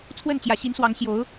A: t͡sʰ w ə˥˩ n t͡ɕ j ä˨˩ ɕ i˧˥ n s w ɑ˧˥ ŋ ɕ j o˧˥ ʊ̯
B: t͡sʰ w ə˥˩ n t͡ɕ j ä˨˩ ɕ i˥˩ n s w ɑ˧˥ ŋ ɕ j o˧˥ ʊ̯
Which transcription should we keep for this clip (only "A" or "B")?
A